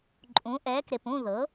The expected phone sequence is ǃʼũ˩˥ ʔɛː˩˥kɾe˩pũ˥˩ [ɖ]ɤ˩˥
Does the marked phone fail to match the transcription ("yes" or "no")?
yes